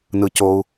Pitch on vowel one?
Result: low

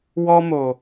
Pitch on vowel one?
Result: high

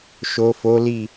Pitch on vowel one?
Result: low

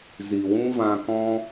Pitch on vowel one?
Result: low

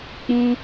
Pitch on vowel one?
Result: high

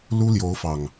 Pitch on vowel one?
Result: high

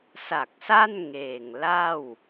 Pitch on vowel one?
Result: low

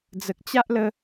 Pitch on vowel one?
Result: low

